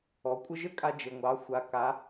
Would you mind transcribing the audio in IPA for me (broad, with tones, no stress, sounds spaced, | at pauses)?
ɔ˩˧ kʷʼ ɘ˥ ʒ ɘ˥ kʼ a˧ d͡ʒ ɘ˩ ŋʷ ɑ˩˧ xʷ a˩ k a˩˧